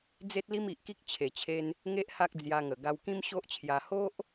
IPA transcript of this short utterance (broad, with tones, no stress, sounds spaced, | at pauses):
d͡z e˦ t̚ l i˦ m i˨ ʔ k i˦ k̚ t͡ɕʰ e˨˩ t͡ɕʰ e˧ n | ŋ e˦ ʔ h a˦ k̚ d͡z j a˧ ŋ ə˨˩ ɡ a˧ w k ĩ˦ m ɕ o˦ ʔ t͡ɕʰ j a˧ h o˦ ʔ